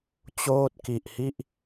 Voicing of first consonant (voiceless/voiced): voiceless